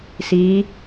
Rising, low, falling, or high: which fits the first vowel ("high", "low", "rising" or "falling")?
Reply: rising